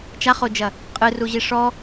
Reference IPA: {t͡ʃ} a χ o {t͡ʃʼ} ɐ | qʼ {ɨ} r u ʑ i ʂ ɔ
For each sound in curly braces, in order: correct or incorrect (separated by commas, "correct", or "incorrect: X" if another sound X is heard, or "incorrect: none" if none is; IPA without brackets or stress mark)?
correct, incorrect: d͡ʒ, correct